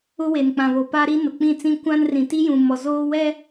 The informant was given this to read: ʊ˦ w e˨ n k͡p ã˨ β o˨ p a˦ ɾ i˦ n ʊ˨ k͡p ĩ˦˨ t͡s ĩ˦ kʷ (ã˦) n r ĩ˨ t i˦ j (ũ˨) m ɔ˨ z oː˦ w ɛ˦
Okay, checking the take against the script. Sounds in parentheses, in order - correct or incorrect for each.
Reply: correct, correct

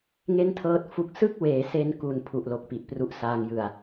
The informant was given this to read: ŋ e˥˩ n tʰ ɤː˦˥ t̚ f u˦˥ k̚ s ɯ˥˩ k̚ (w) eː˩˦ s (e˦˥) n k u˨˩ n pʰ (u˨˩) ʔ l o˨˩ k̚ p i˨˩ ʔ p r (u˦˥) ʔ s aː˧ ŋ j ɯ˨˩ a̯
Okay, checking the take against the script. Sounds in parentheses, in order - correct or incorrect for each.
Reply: correct, incorrect: e˧, correct, correct

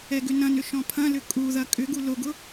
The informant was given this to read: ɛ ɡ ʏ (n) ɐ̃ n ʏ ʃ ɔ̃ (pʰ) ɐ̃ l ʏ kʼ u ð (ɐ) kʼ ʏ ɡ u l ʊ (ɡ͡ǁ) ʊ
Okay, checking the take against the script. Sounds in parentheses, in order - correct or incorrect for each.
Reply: correct, correct, correct, incorrect: ɡ

